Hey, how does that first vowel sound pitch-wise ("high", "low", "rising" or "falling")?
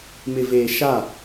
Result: low